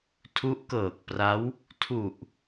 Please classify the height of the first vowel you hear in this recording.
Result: high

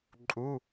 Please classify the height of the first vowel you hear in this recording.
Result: high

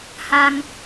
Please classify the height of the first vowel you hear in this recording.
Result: low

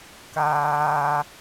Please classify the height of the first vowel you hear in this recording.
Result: low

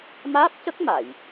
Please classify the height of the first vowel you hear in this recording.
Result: low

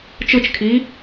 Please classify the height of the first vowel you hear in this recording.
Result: high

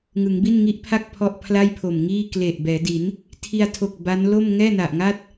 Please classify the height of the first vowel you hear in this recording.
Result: high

